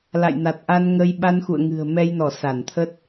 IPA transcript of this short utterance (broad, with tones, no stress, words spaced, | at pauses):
la̰˧˨jna˨˩t̚ʔa˧nŋə˧j ɓa˧nxṵ˧˨ə̯ŋɨ̤˨˩ə̯ mɛ˧jnɔ˧˩ sa˧˩nt̪ʰə˦˥t̚